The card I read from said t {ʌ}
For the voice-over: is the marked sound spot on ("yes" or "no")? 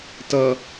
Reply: yes